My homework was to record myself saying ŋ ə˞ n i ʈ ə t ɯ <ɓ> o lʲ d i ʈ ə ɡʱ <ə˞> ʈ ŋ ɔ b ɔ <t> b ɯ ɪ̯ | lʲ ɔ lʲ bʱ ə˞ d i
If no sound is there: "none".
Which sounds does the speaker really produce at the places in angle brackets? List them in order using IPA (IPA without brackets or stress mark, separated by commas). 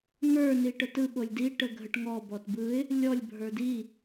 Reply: ɓ, ə, t